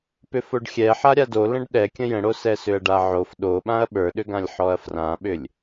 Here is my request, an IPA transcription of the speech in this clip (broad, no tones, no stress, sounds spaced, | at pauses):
p ʏ f o ɖ xʲ ɛ ħ a ɾʲ a d o l ə̃ ɖ ɗ ɛ kʲ ə̃ j ə̃ ɽ o s ɛ s ʏ ɐ̯ ɖ a ʕ o f ɗ o ɓ ã ɐ̯ ɓ ə˞ ɗ ʏ ɡ ã lʲ ħ ɔ ɐ̯ f r ã ɓ ʏ lʲ